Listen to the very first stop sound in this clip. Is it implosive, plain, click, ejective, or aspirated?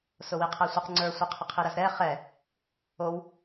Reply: aspirated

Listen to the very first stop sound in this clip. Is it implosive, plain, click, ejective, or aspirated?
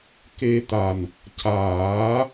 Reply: plain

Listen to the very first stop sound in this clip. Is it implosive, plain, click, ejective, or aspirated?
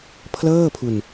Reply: aspirated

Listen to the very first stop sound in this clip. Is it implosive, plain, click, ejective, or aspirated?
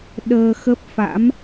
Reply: implosive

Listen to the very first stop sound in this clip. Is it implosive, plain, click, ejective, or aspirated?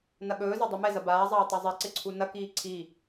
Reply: implosive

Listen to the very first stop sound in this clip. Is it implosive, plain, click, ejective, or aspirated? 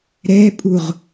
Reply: ejective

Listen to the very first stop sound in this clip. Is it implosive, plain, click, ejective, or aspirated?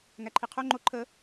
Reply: click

